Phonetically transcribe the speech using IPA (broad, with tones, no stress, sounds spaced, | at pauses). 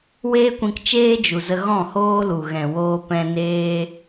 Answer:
w eː˦ kʷ ĩ˧ k t͡ʃ eː˦ d͡ʒ u˨ z ə˧ ɣ ɔ̃˦˨ h oː˦ l u˨ ɣ ɛ̃˨ w oː˧ p ɛ̃˧ n eː˦